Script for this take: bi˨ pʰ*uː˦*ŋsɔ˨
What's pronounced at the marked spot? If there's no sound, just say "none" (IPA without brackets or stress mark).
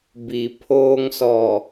oː˦